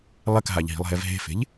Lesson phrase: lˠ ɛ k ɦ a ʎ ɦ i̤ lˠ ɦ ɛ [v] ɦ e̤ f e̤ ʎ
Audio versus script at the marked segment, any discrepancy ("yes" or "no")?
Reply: no